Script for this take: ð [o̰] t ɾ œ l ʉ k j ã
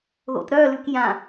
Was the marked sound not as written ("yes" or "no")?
no